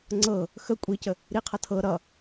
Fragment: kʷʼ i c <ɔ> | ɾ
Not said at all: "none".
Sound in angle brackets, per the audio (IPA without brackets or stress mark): ə